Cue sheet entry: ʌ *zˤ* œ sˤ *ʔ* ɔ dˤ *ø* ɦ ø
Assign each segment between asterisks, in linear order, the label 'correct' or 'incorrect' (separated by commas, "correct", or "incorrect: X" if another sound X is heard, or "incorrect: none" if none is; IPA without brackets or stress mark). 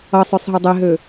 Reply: incorrect: sˤ, incorrect: ɦ, incorrect: e